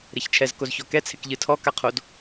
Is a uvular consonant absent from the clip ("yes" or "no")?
no